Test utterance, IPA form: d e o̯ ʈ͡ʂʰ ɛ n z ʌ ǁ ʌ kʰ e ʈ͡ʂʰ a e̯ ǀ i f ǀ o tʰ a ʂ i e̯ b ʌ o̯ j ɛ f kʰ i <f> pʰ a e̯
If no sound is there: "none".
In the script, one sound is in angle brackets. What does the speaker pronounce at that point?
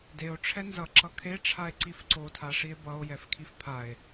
f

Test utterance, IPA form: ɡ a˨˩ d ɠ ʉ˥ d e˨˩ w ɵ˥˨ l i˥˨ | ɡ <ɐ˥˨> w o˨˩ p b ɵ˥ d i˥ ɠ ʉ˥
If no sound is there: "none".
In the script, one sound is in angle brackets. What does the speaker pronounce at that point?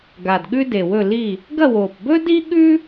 ɐ˥˨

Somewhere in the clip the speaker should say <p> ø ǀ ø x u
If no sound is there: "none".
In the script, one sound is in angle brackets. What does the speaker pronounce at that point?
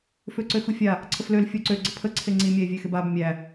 f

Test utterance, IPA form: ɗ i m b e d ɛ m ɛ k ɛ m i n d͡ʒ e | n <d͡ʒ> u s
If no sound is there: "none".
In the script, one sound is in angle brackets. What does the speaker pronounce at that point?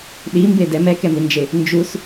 d͡ʒ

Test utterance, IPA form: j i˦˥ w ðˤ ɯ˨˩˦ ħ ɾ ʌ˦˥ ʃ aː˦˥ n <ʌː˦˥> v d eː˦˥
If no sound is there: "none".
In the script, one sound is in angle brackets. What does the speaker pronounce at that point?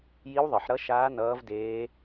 ʌː˦˥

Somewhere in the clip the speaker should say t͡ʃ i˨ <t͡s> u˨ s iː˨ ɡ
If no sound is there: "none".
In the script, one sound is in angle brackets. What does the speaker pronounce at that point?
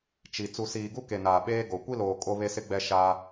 t͡s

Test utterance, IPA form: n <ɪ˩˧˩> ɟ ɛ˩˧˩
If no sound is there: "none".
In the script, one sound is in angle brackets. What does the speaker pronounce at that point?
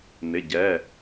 ɪ˩˧˩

